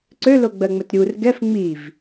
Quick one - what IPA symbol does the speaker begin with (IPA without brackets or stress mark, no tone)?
ǀ